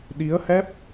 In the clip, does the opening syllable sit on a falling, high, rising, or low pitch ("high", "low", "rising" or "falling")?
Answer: rising